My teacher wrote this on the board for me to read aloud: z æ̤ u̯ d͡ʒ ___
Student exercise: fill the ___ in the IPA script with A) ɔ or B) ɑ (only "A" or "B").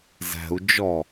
A